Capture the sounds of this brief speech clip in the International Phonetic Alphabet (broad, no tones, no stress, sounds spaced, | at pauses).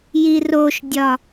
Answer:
j i r o ʃ dʲ ɒ